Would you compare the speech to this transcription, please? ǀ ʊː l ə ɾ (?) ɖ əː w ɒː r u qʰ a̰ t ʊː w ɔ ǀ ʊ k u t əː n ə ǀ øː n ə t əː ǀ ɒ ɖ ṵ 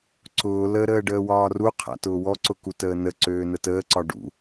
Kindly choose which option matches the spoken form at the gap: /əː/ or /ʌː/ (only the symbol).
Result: əː